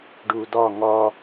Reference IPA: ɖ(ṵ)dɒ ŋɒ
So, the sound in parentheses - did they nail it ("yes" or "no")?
no